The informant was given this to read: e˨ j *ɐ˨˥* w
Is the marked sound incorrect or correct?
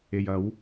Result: correct